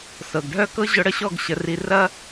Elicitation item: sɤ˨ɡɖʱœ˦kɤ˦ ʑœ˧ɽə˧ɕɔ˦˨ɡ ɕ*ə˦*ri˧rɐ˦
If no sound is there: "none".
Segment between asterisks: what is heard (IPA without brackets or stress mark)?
ə˧